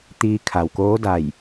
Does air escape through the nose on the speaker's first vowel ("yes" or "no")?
no